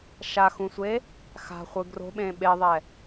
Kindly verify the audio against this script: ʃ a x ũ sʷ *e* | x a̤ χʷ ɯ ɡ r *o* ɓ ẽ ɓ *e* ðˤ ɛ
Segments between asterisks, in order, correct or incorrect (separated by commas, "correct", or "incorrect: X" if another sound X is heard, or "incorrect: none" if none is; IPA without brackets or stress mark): correct, incorrect: o̤, correct